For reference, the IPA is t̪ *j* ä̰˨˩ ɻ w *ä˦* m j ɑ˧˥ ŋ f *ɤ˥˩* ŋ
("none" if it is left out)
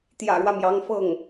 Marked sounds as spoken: j, ä˦, ɤ˥˩

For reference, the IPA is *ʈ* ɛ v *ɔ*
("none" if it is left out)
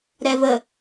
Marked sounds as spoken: ɾ, ə

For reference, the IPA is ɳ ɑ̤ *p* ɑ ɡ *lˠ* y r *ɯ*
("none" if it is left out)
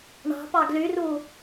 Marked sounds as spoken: p, l, u

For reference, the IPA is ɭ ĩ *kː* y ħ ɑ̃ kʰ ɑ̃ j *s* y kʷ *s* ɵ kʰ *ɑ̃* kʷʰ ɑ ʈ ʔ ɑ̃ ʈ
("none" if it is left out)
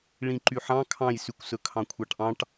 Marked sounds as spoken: ǃ, s, s, ɑ̃

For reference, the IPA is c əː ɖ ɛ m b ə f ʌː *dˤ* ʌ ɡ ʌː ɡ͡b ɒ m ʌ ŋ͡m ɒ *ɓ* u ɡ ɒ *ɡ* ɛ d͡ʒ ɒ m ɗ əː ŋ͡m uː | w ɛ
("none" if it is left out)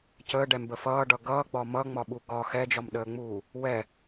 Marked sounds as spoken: ɖ, ɓ, x

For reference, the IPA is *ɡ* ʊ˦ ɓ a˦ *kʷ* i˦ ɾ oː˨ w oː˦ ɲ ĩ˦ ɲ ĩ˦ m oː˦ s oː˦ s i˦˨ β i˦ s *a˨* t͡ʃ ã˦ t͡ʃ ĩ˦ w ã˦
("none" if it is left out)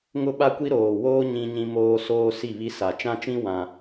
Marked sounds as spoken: ŋ, kʷ, a˨

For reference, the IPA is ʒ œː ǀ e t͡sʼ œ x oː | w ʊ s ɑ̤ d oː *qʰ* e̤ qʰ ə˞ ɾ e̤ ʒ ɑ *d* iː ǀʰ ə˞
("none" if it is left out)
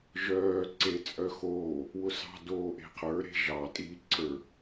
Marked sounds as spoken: ʔ, tʼ

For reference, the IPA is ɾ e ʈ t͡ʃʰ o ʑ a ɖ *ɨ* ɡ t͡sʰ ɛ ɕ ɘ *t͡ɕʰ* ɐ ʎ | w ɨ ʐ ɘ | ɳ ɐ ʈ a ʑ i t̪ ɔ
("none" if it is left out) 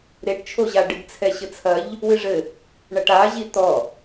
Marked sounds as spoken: ɨ, t͡sʰ

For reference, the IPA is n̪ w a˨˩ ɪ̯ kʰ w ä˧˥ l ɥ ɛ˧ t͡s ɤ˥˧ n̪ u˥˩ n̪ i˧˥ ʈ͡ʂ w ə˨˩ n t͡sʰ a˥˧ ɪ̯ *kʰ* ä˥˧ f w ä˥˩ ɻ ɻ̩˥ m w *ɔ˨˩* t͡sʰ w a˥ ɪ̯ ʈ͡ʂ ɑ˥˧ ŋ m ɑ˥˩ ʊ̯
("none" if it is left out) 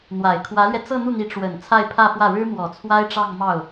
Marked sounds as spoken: pʰ, ɔ˨˩

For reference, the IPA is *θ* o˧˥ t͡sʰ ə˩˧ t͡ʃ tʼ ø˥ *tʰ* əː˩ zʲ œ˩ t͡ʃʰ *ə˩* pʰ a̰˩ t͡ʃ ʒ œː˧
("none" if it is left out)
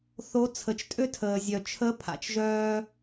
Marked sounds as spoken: θ, tʰ, ə˧˥

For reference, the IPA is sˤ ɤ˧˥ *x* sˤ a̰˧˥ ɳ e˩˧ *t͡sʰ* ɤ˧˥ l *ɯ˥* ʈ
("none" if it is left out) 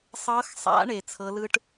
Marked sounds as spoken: x, t͡sʰ, ɯ˥

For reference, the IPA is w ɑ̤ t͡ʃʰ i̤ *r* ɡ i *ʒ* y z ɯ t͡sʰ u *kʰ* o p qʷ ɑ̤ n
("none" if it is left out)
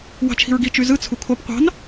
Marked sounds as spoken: ɹ, t͡ʃ, kʰ

